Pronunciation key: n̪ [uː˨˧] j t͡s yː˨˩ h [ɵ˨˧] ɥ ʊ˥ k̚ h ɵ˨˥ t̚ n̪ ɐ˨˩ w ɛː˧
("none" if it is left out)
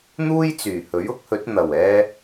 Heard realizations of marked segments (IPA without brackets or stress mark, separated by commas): uː˥, ɵ˨˥